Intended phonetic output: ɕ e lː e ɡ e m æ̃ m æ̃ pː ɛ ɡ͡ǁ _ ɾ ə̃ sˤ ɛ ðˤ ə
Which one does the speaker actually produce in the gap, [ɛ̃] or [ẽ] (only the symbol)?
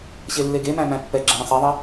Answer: ɛ̃